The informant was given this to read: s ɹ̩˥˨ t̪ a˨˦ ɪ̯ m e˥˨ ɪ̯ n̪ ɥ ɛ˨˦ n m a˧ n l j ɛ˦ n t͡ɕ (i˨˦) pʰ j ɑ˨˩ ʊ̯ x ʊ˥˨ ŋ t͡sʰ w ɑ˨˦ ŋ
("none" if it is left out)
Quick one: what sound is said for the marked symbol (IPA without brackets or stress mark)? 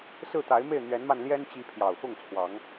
i˨˦